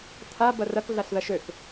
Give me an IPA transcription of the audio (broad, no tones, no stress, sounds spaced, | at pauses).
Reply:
tʰ a b ɐ r ɐ k ɮ a ɬ ð ɐ ʃ ø k